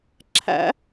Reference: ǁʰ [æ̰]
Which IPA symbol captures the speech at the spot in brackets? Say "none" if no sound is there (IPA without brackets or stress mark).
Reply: æ̰